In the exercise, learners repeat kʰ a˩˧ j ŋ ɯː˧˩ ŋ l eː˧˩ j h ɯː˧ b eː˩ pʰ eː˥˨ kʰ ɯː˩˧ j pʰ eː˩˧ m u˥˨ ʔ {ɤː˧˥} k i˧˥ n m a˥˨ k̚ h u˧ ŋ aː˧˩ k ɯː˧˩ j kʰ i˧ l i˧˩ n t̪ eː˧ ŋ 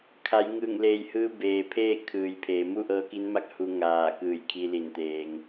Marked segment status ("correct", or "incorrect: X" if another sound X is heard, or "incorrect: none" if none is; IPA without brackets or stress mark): correct